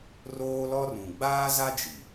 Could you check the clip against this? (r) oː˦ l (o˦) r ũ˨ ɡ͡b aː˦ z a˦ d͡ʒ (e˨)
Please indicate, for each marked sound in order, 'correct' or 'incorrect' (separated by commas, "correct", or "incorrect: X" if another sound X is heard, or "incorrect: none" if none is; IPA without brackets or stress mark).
correct, incorrect: ɔ˦, incorrect: i˨